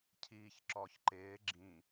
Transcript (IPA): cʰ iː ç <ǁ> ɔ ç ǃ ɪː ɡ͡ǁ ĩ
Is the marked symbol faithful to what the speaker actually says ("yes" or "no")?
yes